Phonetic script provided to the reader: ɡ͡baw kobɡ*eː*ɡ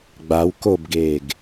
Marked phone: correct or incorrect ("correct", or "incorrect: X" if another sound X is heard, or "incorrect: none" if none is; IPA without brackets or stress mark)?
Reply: correct